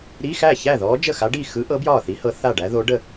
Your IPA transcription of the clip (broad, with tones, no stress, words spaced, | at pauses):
ɾi˧˥˧xæ˥˩çæ˥˩ ðɔ˧˥d͡ʒə˥˩xa˧˥ɖi˥˩ xɯ˧˥ʔɤ˧˥ bjɒː˥˩θi˧˥hɤ˧˥ θa˥˩ɖæ˧˥ðo˧˥ ɖə˥˩